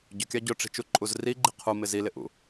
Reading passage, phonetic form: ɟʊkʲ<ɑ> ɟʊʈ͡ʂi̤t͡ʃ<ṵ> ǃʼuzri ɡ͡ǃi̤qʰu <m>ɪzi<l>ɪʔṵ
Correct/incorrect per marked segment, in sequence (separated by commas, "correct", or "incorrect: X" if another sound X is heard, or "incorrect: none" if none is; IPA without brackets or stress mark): correct, incorrect: u, correct, correct